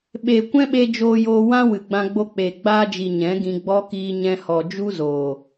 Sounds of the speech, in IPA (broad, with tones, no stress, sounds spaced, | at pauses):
ɓ e˨ kʷ ɛ̃˦ ɓ e˧ d͡ʒ oː˧ j oː˧ w ã˦ w ɨ˨ ɡ͡b ã˧ ɡ͡b o˧ k͡p eː˨ ɡ͡b aː˧ d͡ʒ i˨ ɲ ɛ̃˨˦ ɡ ĩ˧ ɡ͡b ɔ˦ k iː˧ ɲ ɛ̃˧ h ɔ˨ d͡ʒ u˦ z oː˨